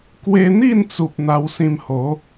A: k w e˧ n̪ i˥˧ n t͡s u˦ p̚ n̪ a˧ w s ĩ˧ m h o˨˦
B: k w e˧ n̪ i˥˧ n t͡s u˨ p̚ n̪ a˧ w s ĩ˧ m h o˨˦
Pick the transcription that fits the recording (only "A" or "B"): B